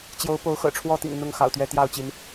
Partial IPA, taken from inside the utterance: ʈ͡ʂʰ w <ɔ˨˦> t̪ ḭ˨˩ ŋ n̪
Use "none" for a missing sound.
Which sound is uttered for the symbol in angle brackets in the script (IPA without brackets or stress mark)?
ɔ˥˨